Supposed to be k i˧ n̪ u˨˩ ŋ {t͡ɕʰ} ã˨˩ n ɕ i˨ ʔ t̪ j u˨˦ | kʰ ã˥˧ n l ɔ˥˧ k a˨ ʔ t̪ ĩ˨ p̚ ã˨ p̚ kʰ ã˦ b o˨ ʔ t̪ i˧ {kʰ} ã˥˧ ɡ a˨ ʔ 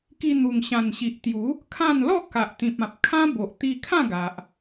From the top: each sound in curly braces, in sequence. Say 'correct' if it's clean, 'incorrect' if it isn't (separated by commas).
incorrect, correct